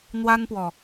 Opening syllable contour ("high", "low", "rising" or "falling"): high